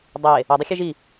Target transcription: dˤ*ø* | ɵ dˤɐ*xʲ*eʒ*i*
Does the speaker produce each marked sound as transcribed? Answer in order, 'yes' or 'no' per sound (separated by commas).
no, yes, yes